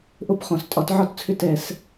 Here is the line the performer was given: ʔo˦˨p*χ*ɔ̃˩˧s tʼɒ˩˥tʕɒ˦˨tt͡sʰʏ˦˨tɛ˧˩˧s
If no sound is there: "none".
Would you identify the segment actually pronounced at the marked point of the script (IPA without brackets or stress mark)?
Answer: χ